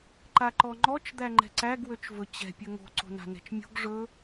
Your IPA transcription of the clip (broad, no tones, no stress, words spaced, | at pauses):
ǃaǃɔŋ͡ǃɔt͡ʃ d̪æŋ͡ǃɛ̤ǀæɡ wøt͡ʃvɵt͡ɕɛ̤ pʲɵŋo̤ ǀo̤na̤nɛ̤t͡ʃmʲo̤ɡ ʐɵ